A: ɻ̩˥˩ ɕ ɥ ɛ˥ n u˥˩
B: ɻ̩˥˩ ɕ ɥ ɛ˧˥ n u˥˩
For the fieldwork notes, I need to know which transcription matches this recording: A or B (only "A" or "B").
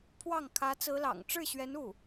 B